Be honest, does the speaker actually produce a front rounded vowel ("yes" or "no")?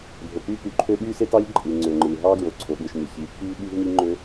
yes